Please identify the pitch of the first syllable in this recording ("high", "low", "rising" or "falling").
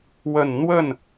low